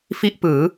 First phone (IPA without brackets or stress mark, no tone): f